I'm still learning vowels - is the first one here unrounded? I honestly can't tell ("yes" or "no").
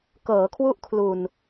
yes